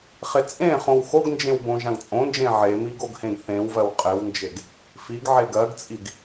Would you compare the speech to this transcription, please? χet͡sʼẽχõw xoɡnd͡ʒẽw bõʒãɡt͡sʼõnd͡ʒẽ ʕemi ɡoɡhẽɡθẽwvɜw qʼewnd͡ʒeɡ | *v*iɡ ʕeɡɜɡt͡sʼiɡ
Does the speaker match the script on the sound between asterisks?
no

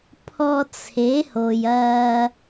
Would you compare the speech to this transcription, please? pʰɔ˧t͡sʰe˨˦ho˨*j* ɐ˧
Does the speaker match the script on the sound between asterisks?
yes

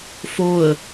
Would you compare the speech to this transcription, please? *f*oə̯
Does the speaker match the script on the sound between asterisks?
yes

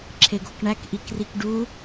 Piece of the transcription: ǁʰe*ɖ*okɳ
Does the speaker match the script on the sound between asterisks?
no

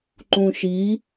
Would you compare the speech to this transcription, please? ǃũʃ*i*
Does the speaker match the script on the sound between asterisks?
yes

